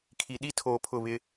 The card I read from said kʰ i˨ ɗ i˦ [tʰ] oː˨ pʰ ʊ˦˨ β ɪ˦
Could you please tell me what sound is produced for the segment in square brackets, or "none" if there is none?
tʰ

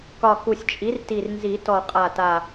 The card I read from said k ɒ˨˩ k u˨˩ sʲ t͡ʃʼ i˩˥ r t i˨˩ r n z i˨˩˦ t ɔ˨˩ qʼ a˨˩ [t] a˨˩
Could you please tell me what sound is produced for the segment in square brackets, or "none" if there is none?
t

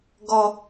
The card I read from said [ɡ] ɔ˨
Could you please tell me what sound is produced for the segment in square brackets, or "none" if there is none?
ɡ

